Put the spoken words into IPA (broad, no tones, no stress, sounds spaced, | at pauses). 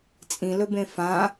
t͡sʼ ĩ l ɵ b ẽ f ã